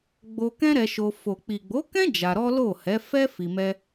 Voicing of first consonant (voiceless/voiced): voiced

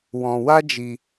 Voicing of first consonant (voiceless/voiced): voiced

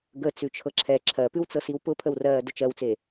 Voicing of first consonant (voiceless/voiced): voiced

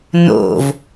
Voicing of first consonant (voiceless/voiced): voiced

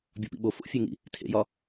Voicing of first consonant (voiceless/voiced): voiced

